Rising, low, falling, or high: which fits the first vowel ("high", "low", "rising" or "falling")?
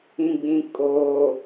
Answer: low